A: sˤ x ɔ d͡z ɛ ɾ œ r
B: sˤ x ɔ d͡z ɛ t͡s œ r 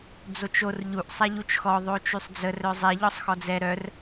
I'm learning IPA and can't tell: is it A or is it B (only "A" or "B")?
A